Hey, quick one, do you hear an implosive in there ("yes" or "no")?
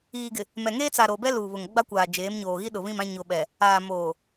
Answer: yes